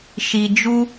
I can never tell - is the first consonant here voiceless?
yes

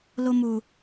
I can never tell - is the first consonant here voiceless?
no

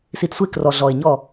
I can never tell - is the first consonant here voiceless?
yes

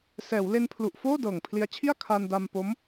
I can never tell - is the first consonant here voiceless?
yes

